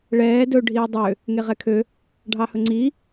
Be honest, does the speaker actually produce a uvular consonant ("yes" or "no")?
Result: yes